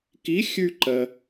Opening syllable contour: rising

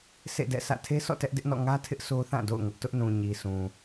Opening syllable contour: falling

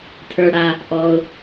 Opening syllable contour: low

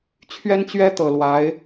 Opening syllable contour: high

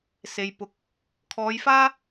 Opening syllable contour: low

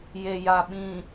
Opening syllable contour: low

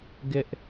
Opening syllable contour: high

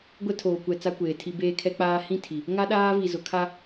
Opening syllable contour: high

